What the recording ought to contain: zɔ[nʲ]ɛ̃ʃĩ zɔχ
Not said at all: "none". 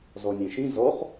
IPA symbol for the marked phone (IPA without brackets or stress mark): nʲ